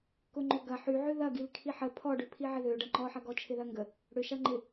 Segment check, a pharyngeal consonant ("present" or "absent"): present